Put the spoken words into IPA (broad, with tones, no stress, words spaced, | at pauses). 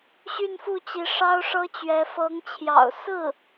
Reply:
ɕy˥˧nfu˥˩t͡ɕi˧˥ ʂɑ˥ʊ̯ʂɤ˥t͡ɕɥɛ˧˥ fɤ˧˥ŋt͡ɕʰjɑ̰˨˩ʊ̯sɹ̩˥˩